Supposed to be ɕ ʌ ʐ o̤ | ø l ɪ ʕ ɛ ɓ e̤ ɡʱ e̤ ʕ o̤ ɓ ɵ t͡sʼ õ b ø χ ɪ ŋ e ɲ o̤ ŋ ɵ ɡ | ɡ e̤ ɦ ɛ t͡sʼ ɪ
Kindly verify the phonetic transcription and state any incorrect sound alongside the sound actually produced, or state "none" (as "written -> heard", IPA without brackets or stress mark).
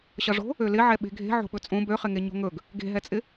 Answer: none